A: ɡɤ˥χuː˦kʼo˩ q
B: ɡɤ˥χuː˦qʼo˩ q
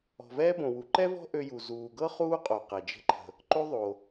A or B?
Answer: B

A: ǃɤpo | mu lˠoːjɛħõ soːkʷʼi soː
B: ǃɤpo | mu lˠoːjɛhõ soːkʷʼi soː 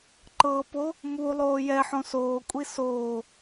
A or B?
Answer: A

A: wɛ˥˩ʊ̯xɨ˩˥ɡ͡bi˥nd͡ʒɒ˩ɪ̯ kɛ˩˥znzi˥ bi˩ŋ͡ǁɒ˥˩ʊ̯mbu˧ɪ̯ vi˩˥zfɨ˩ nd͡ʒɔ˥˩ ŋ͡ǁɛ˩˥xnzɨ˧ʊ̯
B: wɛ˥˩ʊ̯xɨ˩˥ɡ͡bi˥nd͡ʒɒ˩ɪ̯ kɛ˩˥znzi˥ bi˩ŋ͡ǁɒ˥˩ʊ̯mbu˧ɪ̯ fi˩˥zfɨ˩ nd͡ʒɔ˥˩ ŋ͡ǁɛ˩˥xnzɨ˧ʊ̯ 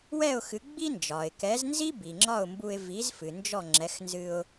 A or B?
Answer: A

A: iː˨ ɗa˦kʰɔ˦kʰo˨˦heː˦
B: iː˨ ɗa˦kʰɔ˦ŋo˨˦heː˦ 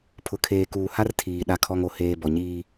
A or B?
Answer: B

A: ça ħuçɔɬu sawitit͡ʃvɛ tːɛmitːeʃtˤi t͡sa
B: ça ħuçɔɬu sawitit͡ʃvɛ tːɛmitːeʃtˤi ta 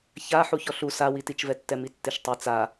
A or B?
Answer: A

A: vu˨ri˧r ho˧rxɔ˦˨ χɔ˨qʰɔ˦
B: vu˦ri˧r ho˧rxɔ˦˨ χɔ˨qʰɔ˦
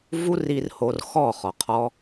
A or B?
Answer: B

